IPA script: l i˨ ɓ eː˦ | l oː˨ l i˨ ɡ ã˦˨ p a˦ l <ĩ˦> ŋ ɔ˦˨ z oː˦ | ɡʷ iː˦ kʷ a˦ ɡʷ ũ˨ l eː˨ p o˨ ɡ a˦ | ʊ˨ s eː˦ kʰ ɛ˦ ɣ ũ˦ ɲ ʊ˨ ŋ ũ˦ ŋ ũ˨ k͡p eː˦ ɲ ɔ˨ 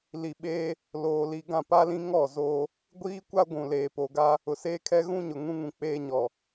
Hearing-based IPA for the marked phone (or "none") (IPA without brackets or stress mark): ĩ˦